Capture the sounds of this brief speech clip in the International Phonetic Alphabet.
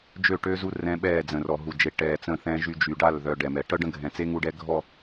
d͡ʒø˦˨ʈø˦zu˦ rɛ̃˦ɓɛː˦˨ d͡zə̃˨rɔ˨ɦu˨d͡ʒe˨ ʈɛː˨ t͡sə̃˦˨θɛ̃˦ʒy˦ d͡ʒy˨ɖa˦˨l ðœ˨ ɖɛ˨mɛ˨ ʈœ˦ɖə̃˦ɡʱɛ̃˨t͡se˦ ŋu˦ɖɛ˦ɡʱɔ˦˨

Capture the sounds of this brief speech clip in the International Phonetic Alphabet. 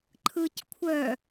ǃʰɯc kʷʰœ

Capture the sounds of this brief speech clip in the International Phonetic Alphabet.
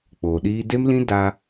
k͡poː˨ɗiː˧de˦mlĩ˦ da˧

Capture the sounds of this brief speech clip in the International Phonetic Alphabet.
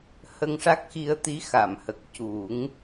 hə˧ŋʂa˦˥k̚xi˧ə̯ t̪i˧˥xa˨˩˨mhə˨˩k̚ cu˨˩˦ŋ

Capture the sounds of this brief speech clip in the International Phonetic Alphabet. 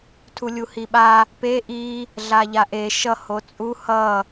tʰulʲuhiɓa | pe ʔi | ɮaʎaʔe ʃʌ hot͡sʼu hʌ

